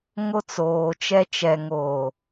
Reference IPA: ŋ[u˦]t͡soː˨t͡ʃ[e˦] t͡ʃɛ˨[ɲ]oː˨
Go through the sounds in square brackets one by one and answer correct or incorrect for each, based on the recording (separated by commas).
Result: incorrect, incorrect, incorrect